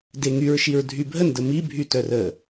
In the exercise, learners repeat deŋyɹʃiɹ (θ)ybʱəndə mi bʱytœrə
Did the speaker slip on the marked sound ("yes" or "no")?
yes